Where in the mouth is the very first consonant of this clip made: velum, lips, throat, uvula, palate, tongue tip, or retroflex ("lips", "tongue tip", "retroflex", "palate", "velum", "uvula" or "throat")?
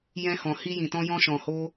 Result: palate